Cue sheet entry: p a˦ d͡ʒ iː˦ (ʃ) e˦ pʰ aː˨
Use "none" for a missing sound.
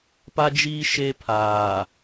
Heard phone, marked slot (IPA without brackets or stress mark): ʃ